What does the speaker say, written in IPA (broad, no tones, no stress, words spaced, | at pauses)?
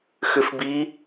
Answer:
xʏfbi